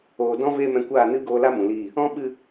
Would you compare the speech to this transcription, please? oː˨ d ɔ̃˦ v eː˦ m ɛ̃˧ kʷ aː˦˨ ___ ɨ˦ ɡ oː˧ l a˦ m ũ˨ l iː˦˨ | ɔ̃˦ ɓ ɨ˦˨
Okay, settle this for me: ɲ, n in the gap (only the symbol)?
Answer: n